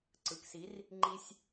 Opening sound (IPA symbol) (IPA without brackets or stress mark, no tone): ǀ